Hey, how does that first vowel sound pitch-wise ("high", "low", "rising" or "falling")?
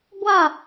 falling